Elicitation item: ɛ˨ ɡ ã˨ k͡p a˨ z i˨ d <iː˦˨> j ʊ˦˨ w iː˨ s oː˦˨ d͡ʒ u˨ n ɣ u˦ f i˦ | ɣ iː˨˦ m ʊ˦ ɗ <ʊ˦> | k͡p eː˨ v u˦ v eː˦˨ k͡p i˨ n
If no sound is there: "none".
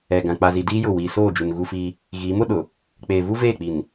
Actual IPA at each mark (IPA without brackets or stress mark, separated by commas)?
iː˦, ʊ˨